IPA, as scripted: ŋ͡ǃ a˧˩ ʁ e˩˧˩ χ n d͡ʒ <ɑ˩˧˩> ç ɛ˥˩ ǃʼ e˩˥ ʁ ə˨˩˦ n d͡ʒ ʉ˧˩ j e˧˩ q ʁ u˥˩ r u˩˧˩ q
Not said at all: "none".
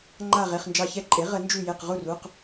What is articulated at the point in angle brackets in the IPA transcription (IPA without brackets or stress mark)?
ɑ˧˩